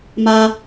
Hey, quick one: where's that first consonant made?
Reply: lips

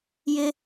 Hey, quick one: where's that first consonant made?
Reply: palate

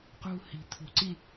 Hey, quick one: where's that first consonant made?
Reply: uvula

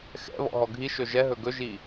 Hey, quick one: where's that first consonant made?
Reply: velum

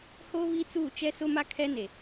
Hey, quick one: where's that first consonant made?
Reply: throat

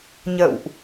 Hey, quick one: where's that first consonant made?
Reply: palate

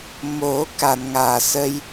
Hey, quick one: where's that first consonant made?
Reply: lips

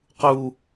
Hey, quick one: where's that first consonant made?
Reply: uvula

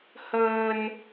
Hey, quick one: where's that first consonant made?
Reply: throat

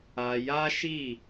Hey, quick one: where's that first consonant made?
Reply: palate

